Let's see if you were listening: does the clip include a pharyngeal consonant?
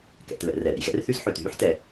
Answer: yes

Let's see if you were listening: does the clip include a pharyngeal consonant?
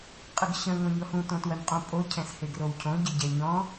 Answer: no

